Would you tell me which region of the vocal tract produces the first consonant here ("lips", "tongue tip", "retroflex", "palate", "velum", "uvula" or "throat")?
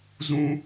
tongue tip